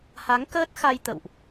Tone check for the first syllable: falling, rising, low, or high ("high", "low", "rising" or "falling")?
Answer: rising